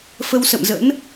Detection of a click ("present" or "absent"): absent